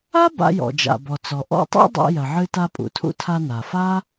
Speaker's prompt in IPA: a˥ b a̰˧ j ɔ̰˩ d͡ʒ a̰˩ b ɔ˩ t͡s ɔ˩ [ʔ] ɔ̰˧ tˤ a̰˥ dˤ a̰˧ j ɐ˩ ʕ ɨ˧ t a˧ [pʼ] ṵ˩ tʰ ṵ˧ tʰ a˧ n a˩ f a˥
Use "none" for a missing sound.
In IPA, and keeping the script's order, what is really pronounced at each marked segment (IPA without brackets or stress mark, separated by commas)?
ʔ, pʼ